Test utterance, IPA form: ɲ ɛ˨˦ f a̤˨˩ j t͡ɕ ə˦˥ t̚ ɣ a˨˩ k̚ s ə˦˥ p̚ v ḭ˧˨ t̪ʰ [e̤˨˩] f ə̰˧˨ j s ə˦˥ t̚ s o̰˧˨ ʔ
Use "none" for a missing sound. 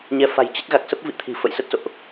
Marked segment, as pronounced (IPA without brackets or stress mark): i̤˨˩